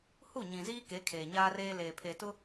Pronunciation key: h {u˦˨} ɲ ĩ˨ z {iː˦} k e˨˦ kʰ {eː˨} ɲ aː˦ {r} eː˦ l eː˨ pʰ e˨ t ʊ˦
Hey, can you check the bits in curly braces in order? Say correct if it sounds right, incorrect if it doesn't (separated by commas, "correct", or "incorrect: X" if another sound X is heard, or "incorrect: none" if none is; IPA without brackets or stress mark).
correct, correct, correct, correct